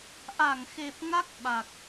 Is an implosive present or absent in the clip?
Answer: present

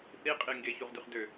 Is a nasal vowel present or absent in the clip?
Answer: absent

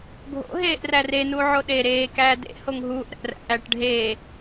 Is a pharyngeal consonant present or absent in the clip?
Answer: present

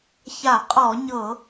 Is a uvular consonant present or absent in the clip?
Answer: present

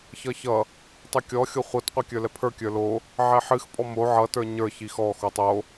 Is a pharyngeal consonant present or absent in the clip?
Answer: present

